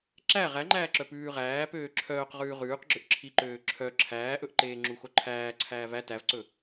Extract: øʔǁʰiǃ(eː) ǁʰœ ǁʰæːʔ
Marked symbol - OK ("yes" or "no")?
no